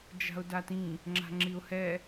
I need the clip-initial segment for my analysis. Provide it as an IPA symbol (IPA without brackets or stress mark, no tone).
d͡ʒ